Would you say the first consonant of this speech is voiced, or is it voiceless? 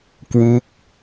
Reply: voiceless